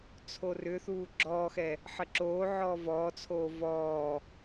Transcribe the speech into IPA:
t͡sʰ o r ʏ θ uː ɡ͡ǁ ɔː x ɛ | ħ ə ǁ oː ʕ ɔː v ɔː t͡sʰ oː v ɔː

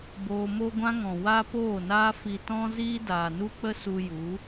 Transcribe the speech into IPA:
b oː˧ m o˦ ɡʷ ã˦ ŋ ɔ̃˨ w a˦ p oː˦˨ n aː˦ f i˨ t ɔ̃˦ z iː˦ d aː˨ n u˦ k͡p ə˦ s u˧ j u˨˦

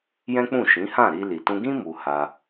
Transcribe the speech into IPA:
j ɛ̃˦ k͡p ũ˦˨ ʃ ĩ˨˦ h ã˦˨ ɾ i˧ l i˨ t ũ˧ ɡ ĩ˦ m u˧ h a˧

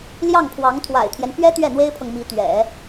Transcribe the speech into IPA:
l j ɑ˥˩ ŋ pʰ w ɑ˧˥ ŋ t̪ʰ w a̰˨˩ ɪ̯ t̪ʰ j ɛ˦ n p ɥ ɛ˥ t̪ ɥ ɛ˥˩ n̪ w e˥ ɪ̯ pʰ ɤ˨ ŋ m i˧˥ t̪ ɥ ɛ̰˨˩˦

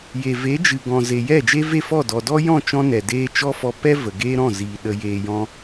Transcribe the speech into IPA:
j e˨ v e˨˦ d͡ʒ ɨ˨ ɡ ɔ̃˨ z e˨ j ɛ˦˨ d͡ʒ e˦ v e˦˨ f ɔ˦˨ d ɔ˨ d ɔ˦ j ɔ̃˦˨ t͡ʃ ɔ̃˦ n ɛ˨ d eː˦ t͡ʃ ɔ˦ f ɔ˧ p ɛ˦ v ə˨ ɡ eː˦ ɾ ɔ̃˦˨ z iː˨ ɗ ə˧ j eː˧ j ɔ̃˦

